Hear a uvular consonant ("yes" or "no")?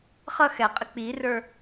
yes